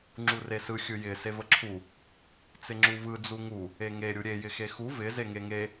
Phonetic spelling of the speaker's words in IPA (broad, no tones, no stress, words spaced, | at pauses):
ŋ͡ǁuresɯ xʲɯjɪ sevəǁʰu | t͡sɪŋ͡ǁuvɯ d͡zuŋu | eŋe ɾʲuɾʲe jɪxexu vɪ zeŋeŋe